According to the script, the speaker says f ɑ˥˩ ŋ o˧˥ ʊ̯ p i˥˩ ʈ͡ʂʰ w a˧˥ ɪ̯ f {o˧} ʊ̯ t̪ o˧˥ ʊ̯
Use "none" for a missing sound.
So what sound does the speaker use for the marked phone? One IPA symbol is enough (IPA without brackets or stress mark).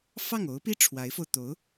o˧